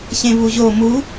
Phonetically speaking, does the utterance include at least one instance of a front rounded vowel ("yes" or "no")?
no